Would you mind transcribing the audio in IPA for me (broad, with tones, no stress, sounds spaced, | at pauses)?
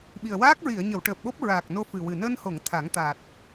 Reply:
ɓ i˨˩ ə̯ w aː˦˥ k̚ ɹ i˨˩˨ ə̯ ɲ ə˨˩˨ w ʈ əː˨˩ p̚ ɓ o˦˥ p̚ ɹ aː˨˩ k̚ n o˧ f ɨ˨˩ w ɨ˨˩ n əː˧ n h o˨˩˨ ŋ t̪ʰ a˨˩˦ ŋ t̪ a˨˩ t̚